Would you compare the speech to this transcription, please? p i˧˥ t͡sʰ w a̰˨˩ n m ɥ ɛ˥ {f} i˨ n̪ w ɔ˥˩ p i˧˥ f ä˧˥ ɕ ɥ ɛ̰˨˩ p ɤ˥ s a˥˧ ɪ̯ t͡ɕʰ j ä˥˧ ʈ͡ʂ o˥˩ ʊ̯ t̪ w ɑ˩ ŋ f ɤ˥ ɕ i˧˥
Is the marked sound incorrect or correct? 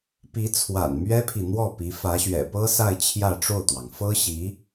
incorrect